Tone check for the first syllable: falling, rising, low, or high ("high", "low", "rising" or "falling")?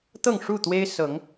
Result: falling